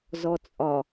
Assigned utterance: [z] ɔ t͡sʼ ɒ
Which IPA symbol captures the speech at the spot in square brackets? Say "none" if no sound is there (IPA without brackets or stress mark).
z